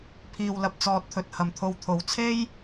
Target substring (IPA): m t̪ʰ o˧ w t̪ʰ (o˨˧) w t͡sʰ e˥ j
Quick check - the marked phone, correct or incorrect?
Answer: correct